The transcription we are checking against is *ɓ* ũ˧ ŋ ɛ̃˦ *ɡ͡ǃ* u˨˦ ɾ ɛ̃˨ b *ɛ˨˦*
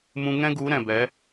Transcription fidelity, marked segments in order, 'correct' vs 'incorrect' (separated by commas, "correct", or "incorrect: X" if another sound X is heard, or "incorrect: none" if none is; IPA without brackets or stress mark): incorrect: m, incorrect: ɡ, correct